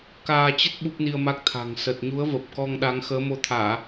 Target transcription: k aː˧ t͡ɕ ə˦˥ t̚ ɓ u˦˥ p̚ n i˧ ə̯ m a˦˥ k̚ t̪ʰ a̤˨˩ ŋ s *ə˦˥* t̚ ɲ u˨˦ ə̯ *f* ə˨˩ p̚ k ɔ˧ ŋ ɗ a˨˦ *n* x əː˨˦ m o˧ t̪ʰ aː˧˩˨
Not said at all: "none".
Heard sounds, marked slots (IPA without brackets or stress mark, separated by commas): ə˨˩, v, ŋ